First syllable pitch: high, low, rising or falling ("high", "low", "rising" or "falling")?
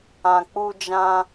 low